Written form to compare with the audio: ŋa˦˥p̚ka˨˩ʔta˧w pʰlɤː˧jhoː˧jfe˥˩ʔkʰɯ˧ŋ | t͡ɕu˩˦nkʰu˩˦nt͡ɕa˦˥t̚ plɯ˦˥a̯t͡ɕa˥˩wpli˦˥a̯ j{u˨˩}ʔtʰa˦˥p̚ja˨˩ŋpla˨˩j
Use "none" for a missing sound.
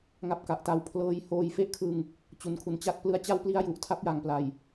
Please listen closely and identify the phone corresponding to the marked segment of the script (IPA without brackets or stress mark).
u˨˩